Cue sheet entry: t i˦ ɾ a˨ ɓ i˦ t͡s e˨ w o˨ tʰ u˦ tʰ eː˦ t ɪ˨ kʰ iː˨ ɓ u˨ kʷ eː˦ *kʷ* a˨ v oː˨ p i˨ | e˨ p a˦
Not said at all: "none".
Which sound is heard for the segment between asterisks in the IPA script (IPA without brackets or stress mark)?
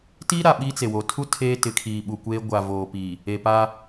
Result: ɡʷ